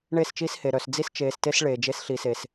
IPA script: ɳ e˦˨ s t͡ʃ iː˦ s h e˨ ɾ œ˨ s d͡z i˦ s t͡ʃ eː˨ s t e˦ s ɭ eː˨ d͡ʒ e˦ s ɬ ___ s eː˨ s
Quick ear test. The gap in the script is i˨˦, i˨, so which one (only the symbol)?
i˨